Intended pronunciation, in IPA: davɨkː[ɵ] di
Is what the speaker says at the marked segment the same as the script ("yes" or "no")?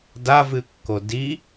no